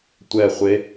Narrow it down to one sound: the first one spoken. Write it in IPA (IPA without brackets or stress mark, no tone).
tʷ